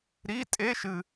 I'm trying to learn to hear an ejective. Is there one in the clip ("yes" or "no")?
yes